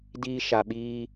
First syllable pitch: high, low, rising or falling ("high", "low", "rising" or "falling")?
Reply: high